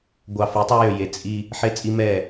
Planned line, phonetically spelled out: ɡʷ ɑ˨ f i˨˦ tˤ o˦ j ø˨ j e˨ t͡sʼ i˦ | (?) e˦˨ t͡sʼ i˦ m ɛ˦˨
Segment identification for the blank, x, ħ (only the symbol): ħ